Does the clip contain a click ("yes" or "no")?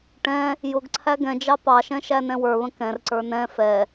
yes